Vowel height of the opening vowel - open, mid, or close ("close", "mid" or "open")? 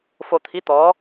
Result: mid